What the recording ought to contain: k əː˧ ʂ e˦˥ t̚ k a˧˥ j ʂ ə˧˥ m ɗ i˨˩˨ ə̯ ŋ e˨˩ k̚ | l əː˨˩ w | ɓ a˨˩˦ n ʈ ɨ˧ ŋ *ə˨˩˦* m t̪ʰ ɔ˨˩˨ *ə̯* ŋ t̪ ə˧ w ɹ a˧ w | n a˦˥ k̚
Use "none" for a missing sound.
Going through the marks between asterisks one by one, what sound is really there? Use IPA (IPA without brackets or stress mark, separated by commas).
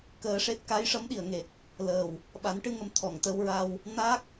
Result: ə˨˩˦, none